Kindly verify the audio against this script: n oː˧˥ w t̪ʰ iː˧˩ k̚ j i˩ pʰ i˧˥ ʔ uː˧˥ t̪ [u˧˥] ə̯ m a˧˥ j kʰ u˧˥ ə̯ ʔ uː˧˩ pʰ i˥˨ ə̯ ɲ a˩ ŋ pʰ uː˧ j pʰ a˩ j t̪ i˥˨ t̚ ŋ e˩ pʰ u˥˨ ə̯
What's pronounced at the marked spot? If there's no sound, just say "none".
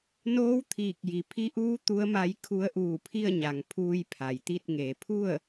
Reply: u˧˥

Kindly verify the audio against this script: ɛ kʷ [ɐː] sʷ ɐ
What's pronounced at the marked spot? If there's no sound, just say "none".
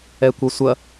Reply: ɐ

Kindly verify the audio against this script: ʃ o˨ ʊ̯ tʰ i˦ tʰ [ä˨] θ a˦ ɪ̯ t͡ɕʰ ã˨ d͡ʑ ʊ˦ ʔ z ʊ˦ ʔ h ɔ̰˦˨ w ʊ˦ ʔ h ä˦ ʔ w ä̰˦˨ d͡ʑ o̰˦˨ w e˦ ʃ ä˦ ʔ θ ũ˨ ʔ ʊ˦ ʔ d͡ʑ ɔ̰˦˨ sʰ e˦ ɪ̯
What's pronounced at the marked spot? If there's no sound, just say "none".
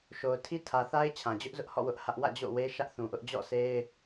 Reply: ä˨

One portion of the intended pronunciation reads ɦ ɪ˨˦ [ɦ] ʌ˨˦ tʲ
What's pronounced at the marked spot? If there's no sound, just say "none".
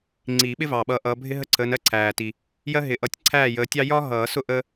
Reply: ʔ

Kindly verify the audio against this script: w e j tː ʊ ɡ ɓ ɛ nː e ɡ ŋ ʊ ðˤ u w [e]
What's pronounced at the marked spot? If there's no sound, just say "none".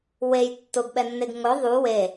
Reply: e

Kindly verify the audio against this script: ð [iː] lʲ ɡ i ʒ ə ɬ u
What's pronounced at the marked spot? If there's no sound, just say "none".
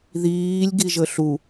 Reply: iː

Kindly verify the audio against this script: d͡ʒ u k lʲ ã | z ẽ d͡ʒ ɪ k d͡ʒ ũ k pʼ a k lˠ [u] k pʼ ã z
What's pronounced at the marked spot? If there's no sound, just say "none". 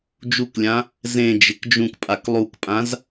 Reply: u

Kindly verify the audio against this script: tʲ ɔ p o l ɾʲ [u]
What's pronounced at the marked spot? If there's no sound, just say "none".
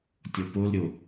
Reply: o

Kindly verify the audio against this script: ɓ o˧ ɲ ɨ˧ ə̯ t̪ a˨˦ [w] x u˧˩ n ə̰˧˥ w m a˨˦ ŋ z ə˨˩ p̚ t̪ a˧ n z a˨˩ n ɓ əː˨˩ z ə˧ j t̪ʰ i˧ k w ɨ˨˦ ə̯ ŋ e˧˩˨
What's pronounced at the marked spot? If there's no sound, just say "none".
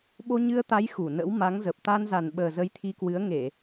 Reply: j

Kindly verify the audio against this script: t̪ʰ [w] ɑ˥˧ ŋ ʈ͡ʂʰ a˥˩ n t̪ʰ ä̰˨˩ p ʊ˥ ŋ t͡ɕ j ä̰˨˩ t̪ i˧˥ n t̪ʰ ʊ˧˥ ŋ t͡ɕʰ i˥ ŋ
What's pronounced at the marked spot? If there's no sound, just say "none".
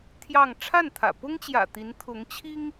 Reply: j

